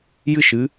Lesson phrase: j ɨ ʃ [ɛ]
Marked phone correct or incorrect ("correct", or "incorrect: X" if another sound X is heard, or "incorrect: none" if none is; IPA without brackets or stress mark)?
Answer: incorrect: ɨ